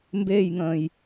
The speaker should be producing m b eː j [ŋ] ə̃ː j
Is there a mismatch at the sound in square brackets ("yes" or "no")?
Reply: no